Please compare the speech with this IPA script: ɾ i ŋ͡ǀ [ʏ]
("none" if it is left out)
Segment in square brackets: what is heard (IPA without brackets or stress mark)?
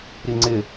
ɪ